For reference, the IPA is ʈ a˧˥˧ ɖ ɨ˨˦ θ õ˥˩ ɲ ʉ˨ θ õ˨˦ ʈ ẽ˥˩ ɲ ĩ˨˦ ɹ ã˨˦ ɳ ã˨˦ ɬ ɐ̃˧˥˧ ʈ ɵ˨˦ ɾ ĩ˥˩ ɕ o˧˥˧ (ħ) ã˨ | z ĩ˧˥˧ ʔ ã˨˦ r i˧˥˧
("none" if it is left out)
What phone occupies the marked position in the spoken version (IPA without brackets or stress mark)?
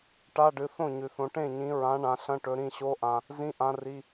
ʔ